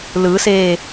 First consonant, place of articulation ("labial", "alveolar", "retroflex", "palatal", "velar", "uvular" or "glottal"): alveolar